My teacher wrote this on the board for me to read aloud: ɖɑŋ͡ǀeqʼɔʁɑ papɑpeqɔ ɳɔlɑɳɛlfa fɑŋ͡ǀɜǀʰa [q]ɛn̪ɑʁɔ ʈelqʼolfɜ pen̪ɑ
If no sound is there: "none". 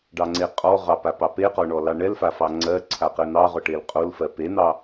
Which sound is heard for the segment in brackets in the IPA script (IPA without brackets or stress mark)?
q